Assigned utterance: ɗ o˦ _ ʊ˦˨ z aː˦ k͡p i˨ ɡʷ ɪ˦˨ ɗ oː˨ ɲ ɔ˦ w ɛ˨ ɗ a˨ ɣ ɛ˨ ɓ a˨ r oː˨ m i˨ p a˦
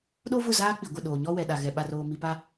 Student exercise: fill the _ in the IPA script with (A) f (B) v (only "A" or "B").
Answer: B